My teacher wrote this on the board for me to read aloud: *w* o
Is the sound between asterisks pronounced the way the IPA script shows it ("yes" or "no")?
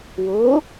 yes